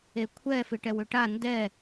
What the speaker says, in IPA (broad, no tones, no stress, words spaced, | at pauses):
ekʷʰɛ fɪʈɛwʏʈa ndɛ